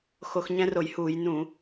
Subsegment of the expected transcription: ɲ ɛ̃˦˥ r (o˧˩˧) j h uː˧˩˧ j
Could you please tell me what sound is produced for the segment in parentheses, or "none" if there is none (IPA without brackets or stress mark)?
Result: o˧˩˧